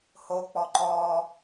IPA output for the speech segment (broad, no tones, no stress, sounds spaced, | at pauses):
h o k͡p ɔ ǃ ɔ